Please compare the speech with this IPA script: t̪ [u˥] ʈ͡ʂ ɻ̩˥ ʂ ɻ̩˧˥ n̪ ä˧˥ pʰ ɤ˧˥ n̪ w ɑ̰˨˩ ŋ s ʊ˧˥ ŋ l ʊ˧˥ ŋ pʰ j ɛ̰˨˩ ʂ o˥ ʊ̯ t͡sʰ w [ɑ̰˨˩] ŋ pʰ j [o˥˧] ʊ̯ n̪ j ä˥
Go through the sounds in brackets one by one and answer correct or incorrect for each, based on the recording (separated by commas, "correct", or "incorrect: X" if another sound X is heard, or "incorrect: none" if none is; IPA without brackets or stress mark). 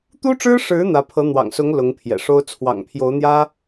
correct, correct, incorrect: o˧˥